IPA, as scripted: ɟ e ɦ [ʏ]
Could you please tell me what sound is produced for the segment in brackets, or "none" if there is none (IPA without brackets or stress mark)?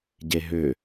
ʏ